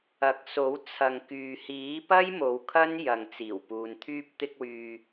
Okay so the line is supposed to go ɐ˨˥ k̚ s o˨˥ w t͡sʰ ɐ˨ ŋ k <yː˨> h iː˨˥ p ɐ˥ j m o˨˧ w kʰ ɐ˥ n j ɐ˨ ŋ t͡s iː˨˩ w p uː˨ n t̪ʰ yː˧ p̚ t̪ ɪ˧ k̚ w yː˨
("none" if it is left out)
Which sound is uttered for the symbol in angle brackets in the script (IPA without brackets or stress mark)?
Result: yː˨